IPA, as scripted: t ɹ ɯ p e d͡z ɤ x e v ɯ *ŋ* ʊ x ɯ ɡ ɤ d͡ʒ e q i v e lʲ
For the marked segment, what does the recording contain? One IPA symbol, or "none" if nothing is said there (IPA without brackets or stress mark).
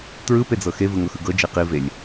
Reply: ŋ